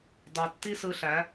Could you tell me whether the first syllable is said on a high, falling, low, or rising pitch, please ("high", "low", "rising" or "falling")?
low